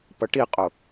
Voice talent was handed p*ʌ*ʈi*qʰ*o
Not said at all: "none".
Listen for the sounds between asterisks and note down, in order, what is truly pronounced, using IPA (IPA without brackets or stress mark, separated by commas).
ʌ, qʼ